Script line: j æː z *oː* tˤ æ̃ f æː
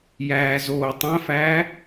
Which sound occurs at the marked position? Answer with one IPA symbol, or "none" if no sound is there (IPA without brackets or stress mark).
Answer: oː